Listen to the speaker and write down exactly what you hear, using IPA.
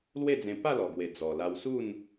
l w e˥˧ d͡z ẽ˧ p a˥˧ l ɔ˨˩ ɡ w e˨˩ d͡z ɔ˨˩ l a˧ w s u˥˧ n

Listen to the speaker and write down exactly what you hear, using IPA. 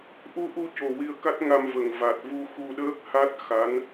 ʔ u˧ ʔ u˧ c o˨˩ w i˧ ə̯ k a˦˥ t̚ ŋ a˧ m v ə˨˩ ŋ v a˨˩ t̚ v u˧ x u˧ ɗ əː˦˥ k̚ h a˦˥ t̚ x a˧˥ n

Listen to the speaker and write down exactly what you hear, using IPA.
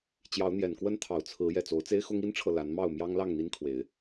t͡ɕ j ɑ˨˦ ʊ̯ n̪ j ɛ˨˩ n k w ə˦ n t̪ʰ ɑ˨˩ ʊ̯ t͡sʰ ɹ̩˨˦ j ɛ˨˩ t͡s o˨˦ ʊ̯ t͡s e˦ ɪ̯ x ʊ˦ ŋ i˦ n ʈ͡ʂʰ ɤ˨ l a˨˦ n m ɑ˥˨ ʊ̯ m j ɑ˦ ŋ l ɑ˥˨ ŋ n̪ i˦ n kʰ w e˨˦ ɪ̯

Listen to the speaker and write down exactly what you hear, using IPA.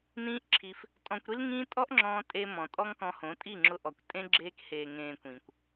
n ĩː˦ ʔ ǁʰ i˧ f | tʼ ɔ̃˧ kʷ ɾ i˦ l ŋ ĩː˦ tʼ ɔ˦ ʔ ŋ͡ǁ ɔ̃ː˧ tʼ e˦ m ɔ̃˨ tʼ ɔ˦ ŋ k ɔ̃˧ h õ˨˦ tʼ i˦˨ ŋ͡ǁ ʊ˧ ʔ ɔ˨ kʷ tʼ ẽ˦ ɡ͡ǁ eː˧ k h eː˨ ŋ ẽː˨ kʷ ĩ˨ kʷ

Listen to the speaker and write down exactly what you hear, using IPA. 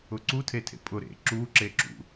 ʊ ǀ u tʰ e tʰ ḛ pʼ ʊ ɾ ḛ ǁ u ǁ e ǁ ṵ

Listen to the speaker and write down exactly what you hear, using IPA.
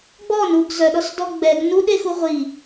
ɡ͡b ɔ n u ɡ z œ ɗ ɔ s d ɔ ɡ͡b ɛ ɡ n u ɗ e x u ʁʷ i

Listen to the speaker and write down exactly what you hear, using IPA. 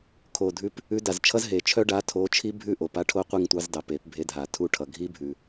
kʰ o˨˩ dʱ ʉ˨˥ p | ʉ˨˥ d a˨˩ z t͡ʃʰ ʌ˦˥ z ɦ e˨˩ t͡ʃʰ œ˦˥ ɖ a˨˥ tʰ o˨˥ t͡ʃʰ i˦˥ bʱ ʉ˦˨ ʔ o˨˩ p a˦˥ ʈʰ o˦˥ qʷ i˦˨ ŋ tʷ ɑ˨˥ z d ɑ˨˩ p e˨˩˦ p bʱ e˨˥ dʱ a˨˩˦ tʰ u˦˨ ʈʰ ʌ˨˩ ɡʱ i˦˥ bʱ ʉ˨˩

